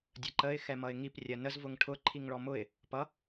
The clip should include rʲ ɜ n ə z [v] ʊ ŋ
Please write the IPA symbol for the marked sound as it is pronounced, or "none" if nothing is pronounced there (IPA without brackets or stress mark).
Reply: v